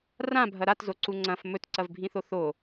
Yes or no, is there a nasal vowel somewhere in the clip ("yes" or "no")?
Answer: yes